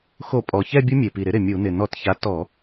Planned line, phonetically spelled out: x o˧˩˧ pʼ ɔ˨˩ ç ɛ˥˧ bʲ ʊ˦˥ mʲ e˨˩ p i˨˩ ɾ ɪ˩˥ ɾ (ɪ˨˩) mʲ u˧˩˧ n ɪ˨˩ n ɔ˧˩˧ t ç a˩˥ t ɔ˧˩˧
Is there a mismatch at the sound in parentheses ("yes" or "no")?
no